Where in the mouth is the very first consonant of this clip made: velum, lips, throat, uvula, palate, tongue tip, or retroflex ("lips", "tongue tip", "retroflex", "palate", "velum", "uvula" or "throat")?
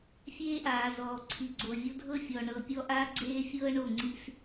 lips